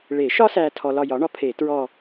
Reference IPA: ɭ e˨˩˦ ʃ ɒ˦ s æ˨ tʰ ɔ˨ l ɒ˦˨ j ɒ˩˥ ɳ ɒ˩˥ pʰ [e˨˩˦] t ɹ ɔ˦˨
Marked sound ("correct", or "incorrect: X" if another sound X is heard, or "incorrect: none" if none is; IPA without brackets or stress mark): correct